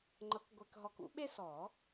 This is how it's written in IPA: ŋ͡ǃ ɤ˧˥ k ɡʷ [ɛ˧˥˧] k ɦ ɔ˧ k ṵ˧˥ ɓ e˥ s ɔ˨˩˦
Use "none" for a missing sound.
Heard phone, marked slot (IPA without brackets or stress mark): ɛ˧